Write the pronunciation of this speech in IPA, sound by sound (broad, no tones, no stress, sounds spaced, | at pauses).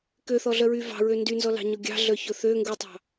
k ø θ ɔ ɮ œ ɹ y v ɑ̤ ɹ ø n d y n z ɔ l ɑ̤ ɲ ɔ ɡʲ ɑ̤ ɮ œ ç ɵ θ ø ŋ ɡ u tˤ ɑ̤